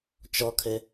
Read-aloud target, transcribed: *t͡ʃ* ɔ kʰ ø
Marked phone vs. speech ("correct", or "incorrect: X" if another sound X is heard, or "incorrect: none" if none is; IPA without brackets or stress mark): correct